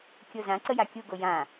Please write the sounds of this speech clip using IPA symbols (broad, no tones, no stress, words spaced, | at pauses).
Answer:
kʲozãǀə jakʲuɡo jã